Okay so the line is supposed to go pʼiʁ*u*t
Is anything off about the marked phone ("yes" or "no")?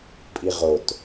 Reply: yes